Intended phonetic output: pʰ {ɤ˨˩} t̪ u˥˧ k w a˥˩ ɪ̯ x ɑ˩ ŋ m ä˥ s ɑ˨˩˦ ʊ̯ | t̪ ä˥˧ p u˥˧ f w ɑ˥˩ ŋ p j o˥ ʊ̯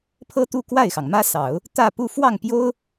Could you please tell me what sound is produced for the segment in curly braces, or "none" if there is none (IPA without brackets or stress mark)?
ɤ˥